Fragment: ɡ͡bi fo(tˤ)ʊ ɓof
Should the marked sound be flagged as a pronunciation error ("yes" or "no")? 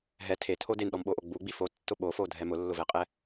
yes